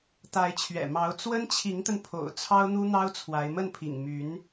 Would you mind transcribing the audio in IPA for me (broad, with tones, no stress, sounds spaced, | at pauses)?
t̪ a˧˥ ɪ̯ t͡ɕʰ ɥ ɛ̰˨˩ m ɑ˧˥ ʊ̯ t͡s w ə˥ n t͡ɕʰ i˧˥ ŋ t̪ ə˧ n pʰ o̰˨˩ ʊ̯ t͡sʰ ɑ˥ ʊ̯ n̪ u˥ n̪ ɑ˥ ʊ̯ t͡sʰ w a˧˥ ɪ̯ m ə˥˩ n pʰ ḭ˨˩ ŋ m y˧˥ n